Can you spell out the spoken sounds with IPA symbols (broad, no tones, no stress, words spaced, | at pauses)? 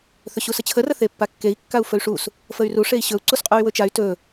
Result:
θɵɕusət͡ɕʰə rəθepːakːei̯ kːau̯fɵy̯ʂus | fəy̯ru ʂei̯ɕɵu̯ ǀusqʼuy̯wɵt͡ʃay̯ tɵ